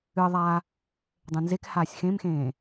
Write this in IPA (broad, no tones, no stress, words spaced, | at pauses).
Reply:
ɨə̯ðˤaː | dˤẽnzekhaːsʲ xẽmxẽː